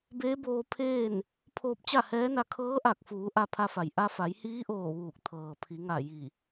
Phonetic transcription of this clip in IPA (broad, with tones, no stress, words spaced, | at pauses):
beː˧˥boː˧ pʰeː˥˨n | pʰoː˧p̚t͡ɕa˥˨hɛː˧˥na˧ kʰɤː˧˥ʔa˧˩k̚fuː˩˧ ʔa˧pʰa˧fa˩j ʔa˧fa˩˧jhiː˧˥ʔoː˧˩ ʋuː˧˩k̚t̪ʰɤː˩ pʰi˩˧ŋa˧˩ ji˧˩